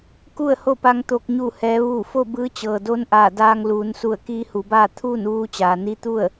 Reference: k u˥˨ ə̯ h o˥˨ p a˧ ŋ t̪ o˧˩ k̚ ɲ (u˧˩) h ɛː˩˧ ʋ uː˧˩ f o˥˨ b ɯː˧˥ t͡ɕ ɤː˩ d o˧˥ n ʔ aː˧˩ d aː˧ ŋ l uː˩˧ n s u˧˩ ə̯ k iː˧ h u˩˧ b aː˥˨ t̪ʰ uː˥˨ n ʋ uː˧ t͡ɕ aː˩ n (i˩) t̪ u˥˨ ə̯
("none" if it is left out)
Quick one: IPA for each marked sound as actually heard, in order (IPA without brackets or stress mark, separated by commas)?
u˧˩, i˧˥